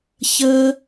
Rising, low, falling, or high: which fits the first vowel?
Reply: high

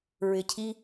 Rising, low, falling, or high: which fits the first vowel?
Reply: low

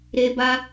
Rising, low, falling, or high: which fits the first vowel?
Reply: high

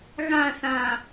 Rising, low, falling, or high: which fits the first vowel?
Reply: falling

